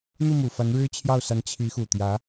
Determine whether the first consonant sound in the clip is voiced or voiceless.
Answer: voiced